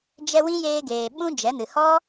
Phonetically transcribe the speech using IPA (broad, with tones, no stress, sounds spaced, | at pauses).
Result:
d͡ʒ ɛ˧ w ĩ˦ j eː˧ ɡ eː˨ ɓ ũ˦ d͡ʒ ɛ˨˦ n ɨ˨ h ɔ˦